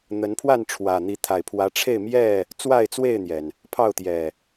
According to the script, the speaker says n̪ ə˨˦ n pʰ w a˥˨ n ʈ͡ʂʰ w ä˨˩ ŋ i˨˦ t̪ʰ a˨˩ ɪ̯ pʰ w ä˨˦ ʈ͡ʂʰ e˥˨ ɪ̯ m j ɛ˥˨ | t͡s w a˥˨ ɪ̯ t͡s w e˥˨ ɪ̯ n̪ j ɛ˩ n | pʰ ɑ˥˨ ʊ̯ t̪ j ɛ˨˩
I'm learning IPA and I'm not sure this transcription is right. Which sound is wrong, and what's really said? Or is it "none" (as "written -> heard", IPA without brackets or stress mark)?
ŋ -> n̪